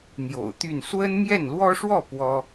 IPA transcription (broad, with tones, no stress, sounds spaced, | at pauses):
n̪ j o̰˨˩ ʊ̯ t̪ y˥˩ n s w ə˥ n m j ɛ˥˩ n l w ɔ˥ ʂ w ɔ˥˩ p w ɔ˥